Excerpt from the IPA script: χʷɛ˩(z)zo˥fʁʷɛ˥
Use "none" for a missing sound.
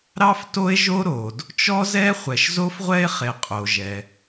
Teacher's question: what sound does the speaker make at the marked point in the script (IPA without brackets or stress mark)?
ʃ